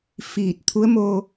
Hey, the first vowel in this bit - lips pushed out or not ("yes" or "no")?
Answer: no